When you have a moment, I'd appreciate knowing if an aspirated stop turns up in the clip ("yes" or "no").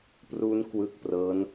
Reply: no